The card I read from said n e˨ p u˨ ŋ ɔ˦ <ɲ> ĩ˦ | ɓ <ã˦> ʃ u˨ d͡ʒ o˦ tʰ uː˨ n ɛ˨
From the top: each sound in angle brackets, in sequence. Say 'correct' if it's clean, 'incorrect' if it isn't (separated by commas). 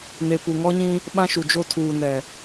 correct, correct